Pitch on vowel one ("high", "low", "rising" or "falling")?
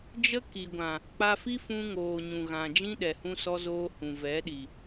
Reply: high